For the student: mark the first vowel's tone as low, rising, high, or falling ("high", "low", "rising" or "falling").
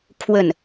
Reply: falling